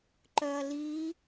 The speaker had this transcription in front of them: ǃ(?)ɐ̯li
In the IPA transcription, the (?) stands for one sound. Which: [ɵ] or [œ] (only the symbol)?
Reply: œ